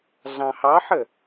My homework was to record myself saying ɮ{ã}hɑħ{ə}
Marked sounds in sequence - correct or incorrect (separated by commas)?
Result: incorrect, correct